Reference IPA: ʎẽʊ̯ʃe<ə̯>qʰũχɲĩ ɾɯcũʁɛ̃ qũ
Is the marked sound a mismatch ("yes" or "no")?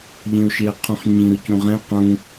no